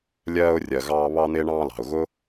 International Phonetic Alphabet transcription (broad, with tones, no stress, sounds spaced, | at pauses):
lʲ ɜː˧ ʊ̯ rʲ ɜ˨ ɣ ɑː˧ β ɑ˧ n̪ ɪː˧ ɳ ɑ̃ː˧ l ɑ̤˨ ʊ̯ ɣ ʊ˦